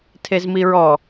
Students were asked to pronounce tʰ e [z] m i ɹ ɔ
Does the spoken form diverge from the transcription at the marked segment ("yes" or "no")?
no